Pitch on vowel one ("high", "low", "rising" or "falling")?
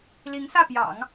rising